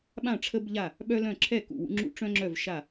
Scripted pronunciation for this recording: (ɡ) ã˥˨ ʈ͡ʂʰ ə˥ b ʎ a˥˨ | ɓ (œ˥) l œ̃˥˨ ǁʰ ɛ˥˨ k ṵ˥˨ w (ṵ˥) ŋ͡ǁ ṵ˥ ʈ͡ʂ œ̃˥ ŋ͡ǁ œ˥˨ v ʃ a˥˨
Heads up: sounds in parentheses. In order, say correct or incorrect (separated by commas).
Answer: incorrect, correct, correct